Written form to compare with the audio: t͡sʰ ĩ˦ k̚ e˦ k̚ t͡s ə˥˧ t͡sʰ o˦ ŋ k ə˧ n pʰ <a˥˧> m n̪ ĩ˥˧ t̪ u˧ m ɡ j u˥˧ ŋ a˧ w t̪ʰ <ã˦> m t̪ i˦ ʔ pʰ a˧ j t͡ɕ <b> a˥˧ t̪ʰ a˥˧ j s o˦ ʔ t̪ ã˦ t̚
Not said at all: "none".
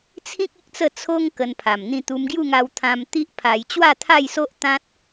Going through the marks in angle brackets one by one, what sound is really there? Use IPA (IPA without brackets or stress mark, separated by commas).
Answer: a˨˩, ã˧, w